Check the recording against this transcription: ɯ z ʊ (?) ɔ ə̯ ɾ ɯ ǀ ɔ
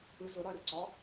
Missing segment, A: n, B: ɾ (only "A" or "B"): B